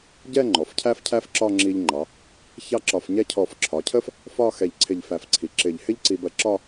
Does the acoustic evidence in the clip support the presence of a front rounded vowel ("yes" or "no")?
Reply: no